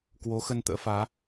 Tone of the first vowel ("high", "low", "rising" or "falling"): rising